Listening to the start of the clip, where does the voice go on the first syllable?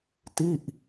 falling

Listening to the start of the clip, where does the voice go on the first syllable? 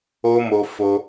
high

